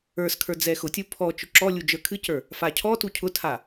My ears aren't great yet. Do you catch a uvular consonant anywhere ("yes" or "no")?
no